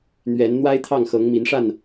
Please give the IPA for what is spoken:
n̪ ɥ ɛ˨˦ n n̪ w a˦ ɪ̯ t̪ʰ ɑ˥˨ ŋ x ɤ˨˦ ŋ m i˨˦ n ʂ a˥˨ n

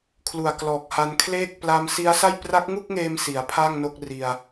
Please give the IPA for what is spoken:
kʰ l u˨˩ a̯ k l ɔː˨˩ k̚ h a˧ n kʰ l eː˥˩ k̚ p l a˧ m s i˦˥ a̯ s a˥˩ j p r a˦˥ k̚ ŋ u˥˩ k̚ ŋ eː˧ m s i˩˦ a̯ pʰ a˥˩ ŋ n o˥˩ k̚ r i˧ a̯

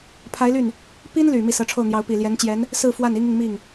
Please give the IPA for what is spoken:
pʰ a˧˥ ɪ̯ l y˥˩ n | p i˥ n l y˨˩ m i˥˩ s ɤ˧˥ ʈ͡ʂʰ o˥˩ ʊ̯ n̪ j ɑ˧˥ ʊ̯ p i˨˩ l j ɛ˧˥ n t͡ɕ j ɛ˧˥ n | s ɹ̩˥˧ f w a˥˩ n i˥ ŋ i˨ ŋ m i˥˩ ŋ

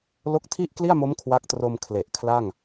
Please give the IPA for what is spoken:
l o˦˥ k̚ tʰ i˥˩ ʔ k l i˥˩ a̯ m o˦˥ m kʰ w a˦˥ k̚ t r o˧ m kʰ l e˨˩ ʔ kʰ l a˥˩ ŋ

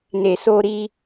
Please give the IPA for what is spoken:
n e˨ s o˧ ɾ i˧

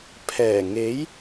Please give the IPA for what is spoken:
pʰ ɛː˨˩ ŋ e˨˥ j

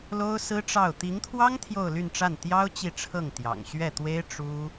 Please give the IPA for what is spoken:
l o˥ ʊ̯ s ɹ̩˥ ʈ͡ʂ ɑ˥˩ ʊ̯ t̪ i˧˥ ŋ t̪ʰ w ɑ˥ ŋ t̪ʰ j o˥˧ ʊ̯ l y˥˧ n ʈ͡ʂ a˥˩ n t̪ j ɑ˥ ʊ̯ t͡ɕ i˥˧ ʈ͡ʂʰ ɤ˥˩ ŋ t̪ j ɑ̰˨˩ ŋ ɕ ɥ ɛ˥˩ t̪ w e˥ ɪ̯ ʈ͡ʂ u˥

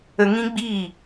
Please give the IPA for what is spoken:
ə˧ ŋ ĩ˦ ɡ͡b iː˦˨

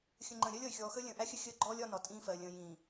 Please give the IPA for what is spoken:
xʲ ə̃˨ ŋ͡ǃ ə̃ː˨ ɾʲ ɜ˦ lʲ ʌ˨ y̯ xʲ ɔː˨ x əː˦ lʲ ə̃ː˨ ʔ æ˦ xʲ ə˦ xʲ əː˦ ɡ͡ǃ ɔː˦ lʲ ɒ˦ n ɒ˨ tʼ ĩː˦ f ɜ˨ lʲ ə̃ː˨ j ĩː˨

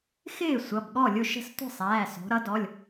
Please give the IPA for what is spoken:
x ɪː˥˩ sʷ ʌ˩˧˩ b ɠ ɔ˥˩ lʲ ʊ˥˩ ʃ ə̤˥˩ s tʷ ə̤˥˩ sˤ æː˩˧˩ s ɔ̤˩˧ ɾ ʌ˩˧ d ɔ˩˧˩ lʲ

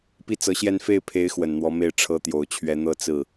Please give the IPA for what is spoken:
p i˥˩ t͡s ɤ˧˥ ɕ j ɛ˥˧ n f e˥˩ ɪ̯ pʰ e˧˥ ɪ̯ x w ə˨˩ n n̪ w ɔ˧˥ m e˥˩ ɪ̯ ʈ͡ʂʰ ɤ˥ t̪ j o˨˩ ʊ̯ t͡ɕʰ ɥ ɛ˧˥ n̪ ɤ˥˧ t͡s ɹ̩˥˩

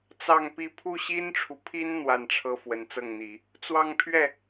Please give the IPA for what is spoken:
t͡s ɑ˥˧ ŋ p i˥˧ pʰ u˥˩ ɕ i˥ n ʈ͡ʂʰ u˨ pʰ i˥ n n̪ w a˥˩ n ʈ͡ʂʰ ɤ˥ f w ə˧˥ n t͡s ɤ˥˩ ŋ n̪ i˨˩˦ | t͡s w ɑ˥˧ ŋ pʰ ɥ ɛ˥˩

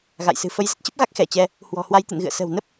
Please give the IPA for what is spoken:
ɣ a̰˧˨ j s ɨ̤˨˩ f ə˨˦ j z ə˦˥ t̚ t͡ɕ ə˦˥ p̚ ɣ a˦˥ k̚ x ɛ˧˩ t͡ɕ ɛ˧ | h w ɔ̤˨˩ h w a˧ j t̪ ɨ̰˧˨ n ɣ ɨ̰˧˨ ə̯ s ə̤˨˩ w n ə˦˥ p̚

